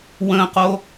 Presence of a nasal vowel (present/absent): present